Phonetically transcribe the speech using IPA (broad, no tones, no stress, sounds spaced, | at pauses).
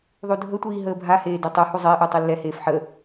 ðˤ u dʱ ə tʷ iː ɦ əː bʱ a h eː d i tˤ u h u zˤ ɪː ʔ u tˤ e lː ɛ h eː f ħ ə